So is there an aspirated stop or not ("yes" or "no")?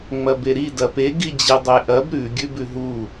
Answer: no